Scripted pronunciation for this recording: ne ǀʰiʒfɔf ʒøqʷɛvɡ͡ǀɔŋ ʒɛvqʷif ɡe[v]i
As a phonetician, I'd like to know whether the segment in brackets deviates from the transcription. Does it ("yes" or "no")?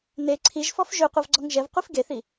yes